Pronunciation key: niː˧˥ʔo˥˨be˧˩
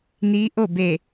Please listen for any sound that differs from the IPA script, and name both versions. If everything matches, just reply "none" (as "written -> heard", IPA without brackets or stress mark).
none